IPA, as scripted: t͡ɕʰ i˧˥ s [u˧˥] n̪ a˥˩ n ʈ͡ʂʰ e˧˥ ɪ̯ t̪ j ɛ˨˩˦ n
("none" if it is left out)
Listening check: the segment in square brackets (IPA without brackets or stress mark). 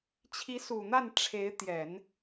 u˨˩